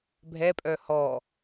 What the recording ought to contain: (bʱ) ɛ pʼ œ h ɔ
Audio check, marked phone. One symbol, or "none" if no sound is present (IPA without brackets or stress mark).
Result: bʱ